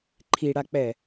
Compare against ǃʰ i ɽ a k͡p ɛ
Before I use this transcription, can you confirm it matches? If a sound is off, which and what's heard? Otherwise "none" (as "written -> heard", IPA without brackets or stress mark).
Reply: none